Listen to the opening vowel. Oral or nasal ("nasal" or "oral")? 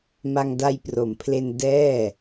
oral